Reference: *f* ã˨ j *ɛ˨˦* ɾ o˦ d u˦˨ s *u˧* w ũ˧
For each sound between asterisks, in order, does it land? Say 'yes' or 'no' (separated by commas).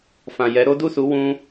yes, yes, no